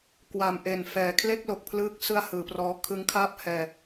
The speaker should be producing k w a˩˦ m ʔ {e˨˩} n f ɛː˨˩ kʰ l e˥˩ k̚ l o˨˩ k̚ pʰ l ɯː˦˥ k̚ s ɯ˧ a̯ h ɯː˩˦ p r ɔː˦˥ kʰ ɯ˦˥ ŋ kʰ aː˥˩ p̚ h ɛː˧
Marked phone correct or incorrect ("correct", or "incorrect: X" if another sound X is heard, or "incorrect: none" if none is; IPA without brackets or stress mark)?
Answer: correct